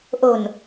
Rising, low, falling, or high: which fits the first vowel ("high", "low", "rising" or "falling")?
low